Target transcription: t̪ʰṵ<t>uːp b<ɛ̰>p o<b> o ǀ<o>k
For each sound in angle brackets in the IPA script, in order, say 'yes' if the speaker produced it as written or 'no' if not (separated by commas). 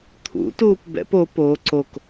yes, yes, no, yes